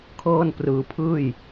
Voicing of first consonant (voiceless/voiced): voiceless